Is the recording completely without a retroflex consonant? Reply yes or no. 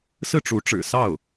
no